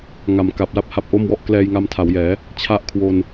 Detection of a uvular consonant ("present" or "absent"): absent